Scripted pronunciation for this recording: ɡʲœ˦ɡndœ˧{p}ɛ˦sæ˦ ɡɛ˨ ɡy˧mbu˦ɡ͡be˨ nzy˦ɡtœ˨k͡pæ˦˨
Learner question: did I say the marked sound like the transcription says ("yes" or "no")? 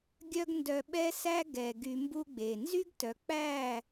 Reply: no